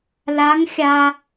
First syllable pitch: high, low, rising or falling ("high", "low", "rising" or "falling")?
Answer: rising